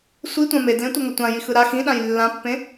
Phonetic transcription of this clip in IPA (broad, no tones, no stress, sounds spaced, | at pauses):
sʷ i tʷ ã m e d l ẽ tʷ ʌ ŋ ʌ tʷ ã j i x ɯ ɾ a x ĩ ɗ ã j lː ã pː ẽ